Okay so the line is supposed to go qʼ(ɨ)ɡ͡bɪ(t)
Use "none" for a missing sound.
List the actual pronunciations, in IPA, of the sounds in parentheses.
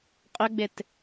ʏ, t

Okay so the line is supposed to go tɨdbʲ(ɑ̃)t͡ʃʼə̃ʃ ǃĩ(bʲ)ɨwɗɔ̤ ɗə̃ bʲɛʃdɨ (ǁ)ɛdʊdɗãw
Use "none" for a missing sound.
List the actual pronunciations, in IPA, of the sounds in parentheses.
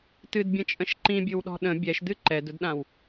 ə̃, bʲ, ǃ

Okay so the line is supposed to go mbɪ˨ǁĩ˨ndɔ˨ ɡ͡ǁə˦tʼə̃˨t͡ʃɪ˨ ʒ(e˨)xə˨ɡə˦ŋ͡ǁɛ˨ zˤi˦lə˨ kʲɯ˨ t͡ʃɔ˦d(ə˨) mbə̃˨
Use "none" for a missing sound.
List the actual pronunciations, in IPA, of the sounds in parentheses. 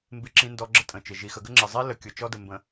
i˨, ə˨

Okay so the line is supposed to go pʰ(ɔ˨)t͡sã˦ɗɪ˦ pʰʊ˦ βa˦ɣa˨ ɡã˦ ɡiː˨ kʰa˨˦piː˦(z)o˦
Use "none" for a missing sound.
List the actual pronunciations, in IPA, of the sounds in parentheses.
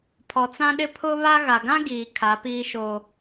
ɔ˨, ʃ

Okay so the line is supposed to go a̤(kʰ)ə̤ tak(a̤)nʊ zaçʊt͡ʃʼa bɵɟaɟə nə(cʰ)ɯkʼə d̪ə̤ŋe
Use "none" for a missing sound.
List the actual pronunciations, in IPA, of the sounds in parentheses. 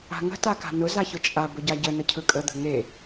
ŋ, a̤, cʰ

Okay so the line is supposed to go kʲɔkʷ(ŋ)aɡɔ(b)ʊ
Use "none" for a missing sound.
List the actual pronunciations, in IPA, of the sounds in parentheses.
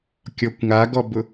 ŋ, b

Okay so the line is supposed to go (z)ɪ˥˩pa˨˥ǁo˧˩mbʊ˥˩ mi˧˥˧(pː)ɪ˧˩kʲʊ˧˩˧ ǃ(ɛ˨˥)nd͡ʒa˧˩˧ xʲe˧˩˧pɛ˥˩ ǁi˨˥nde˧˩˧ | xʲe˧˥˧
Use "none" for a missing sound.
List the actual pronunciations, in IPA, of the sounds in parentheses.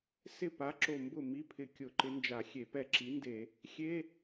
s, pʰ, ɪ˨˥

